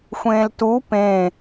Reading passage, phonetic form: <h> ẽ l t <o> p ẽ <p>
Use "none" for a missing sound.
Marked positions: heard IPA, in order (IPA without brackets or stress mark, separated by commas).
xʷ, u, none